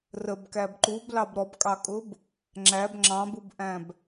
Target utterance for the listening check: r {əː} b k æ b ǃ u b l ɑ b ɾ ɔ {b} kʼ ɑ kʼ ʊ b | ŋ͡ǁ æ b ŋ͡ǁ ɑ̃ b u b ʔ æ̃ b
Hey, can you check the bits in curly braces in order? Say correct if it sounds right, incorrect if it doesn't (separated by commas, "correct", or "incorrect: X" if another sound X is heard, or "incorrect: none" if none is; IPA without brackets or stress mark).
incorrect: ə, correct